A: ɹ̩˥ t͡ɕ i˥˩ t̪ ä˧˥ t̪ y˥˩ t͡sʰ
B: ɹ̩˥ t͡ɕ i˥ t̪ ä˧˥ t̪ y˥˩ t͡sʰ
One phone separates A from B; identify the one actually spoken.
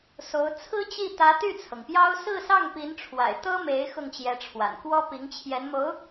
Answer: A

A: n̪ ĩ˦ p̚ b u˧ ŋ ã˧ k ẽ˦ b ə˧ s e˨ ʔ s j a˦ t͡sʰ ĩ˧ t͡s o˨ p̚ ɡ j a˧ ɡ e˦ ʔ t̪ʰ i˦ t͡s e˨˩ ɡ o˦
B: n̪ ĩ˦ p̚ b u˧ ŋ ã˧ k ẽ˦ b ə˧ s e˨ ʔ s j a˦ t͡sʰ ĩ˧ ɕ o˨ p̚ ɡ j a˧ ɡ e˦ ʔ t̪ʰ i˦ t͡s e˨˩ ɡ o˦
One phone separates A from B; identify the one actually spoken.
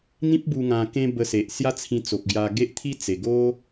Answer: A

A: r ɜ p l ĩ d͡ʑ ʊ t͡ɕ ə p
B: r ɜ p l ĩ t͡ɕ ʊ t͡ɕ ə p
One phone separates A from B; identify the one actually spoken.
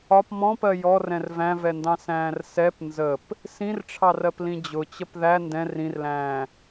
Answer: A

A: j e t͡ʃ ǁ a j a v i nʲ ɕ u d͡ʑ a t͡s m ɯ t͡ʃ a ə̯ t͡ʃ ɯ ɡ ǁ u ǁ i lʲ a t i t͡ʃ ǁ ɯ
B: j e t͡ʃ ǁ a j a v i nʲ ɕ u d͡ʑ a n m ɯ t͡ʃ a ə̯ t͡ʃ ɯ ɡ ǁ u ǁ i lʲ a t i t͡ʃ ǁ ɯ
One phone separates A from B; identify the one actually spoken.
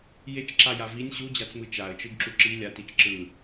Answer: A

